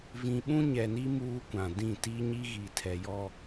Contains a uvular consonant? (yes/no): no